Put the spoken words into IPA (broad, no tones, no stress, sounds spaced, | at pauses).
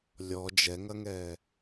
lʲ ɔ d͡ʒ ɛ ŋ ɐ ŋ ɛː